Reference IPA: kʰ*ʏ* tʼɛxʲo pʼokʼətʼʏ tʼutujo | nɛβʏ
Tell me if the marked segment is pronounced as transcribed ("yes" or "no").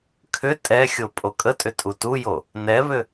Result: yes